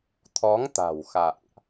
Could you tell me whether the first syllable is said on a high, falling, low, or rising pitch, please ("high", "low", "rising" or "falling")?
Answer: rising